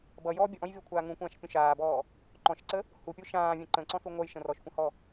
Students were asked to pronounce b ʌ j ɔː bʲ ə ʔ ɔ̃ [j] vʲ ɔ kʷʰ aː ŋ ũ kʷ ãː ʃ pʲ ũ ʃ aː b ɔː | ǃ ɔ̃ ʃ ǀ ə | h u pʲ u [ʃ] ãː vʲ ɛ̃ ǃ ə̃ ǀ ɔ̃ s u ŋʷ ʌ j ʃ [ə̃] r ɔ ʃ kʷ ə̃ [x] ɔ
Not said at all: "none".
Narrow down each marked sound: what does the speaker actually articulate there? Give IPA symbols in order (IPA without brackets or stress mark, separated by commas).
j, ʃ, ə̃, h